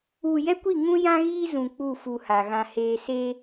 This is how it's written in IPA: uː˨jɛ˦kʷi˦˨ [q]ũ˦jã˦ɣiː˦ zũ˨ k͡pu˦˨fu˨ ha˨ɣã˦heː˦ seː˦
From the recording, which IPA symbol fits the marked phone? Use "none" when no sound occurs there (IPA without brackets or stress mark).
ŋ